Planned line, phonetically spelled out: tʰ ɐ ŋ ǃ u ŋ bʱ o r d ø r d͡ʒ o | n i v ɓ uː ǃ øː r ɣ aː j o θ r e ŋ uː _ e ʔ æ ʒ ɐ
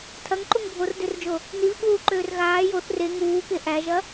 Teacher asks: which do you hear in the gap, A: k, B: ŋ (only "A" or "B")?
A